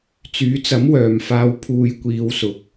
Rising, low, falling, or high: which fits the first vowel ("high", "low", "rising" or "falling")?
rising